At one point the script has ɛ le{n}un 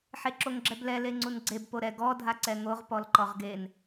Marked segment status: incorrect: ŋ͡ǀ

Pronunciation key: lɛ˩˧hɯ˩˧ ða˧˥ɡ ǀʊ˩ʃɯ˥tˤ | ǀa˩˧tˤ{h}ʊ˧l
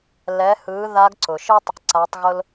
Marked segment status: incorrect: ɣ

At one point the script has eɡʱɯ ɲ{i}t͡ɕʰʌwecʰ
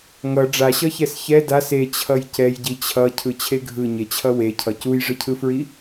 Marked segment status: incorrect: e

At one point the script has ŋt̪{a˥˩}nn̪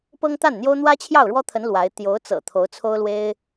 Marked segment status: correct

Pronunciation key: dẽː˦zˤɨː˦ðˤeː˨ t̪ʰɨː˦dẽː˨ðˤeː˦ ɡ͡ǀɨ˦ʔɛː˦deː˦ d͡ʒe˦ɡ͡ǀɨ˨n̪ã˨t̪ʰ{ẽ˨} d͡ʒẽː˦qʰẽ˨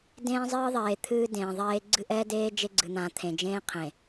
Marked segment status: correct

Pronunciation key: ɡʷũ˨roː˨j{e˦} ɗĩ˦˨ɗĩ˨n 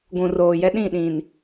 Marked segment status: incorrect: ɛ˦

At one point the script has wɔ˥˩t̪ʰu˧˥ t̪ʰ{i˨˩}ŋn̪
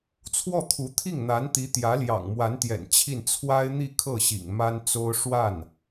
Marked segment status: incorrect: i˥˩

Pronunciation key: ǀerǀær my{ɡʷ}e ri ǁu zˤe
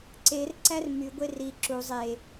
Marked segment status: correct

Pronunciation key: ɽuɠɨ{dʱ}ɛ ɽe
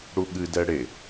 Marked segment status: incorrect: d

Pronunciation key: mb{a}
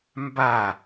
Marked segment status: correct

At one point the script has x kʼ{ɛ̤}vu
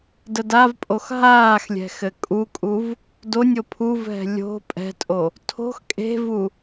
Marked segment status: incorrect: e̤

